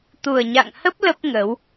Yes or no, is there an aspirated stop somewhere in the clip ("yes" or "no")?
no